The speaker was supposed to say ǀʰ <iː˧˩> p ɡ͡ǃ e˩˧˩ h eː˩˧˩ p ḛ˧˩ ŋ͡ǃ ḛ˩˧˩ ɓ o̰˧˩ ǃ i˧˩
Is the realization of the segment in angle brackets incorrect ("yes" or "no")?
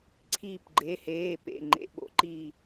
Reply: no